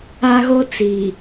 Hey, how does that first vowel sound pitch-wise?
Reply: high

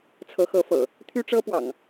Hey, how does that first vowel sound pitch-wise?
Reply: rising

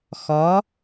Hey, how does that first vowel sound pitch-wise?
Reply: rising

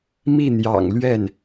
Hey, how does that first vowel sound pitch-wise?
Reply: falling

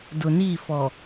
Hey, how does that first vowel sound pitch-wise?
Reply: low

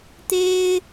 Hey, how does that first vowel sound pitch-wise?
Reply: high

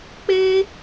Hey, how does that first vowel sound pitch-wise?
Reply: high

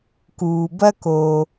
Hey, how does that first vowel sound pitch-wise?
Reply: low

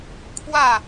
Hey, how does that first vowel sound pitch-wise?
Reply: falling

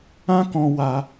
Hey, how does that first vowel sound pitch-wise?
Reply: high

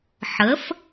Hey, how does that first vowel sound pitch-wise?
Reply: rising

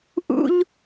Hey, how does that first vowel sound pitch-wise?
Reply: high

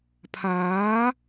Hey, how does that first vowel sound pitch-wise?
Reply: rising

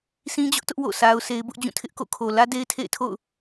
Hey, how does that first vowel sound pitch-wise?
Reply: high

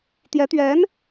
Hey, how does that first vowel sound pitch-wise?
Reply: rising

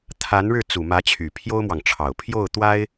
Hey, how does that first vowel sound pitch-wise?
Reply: rising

